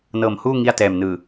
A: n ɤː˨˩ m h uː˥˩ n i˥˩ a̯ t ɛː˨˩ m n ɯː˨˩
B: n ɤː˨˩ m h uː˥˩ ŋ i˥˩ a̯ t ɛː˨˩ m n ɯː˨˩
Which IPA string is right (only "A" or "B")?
B